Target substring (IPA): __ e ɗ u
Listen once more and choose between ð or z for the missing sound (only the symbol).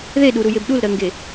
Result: ð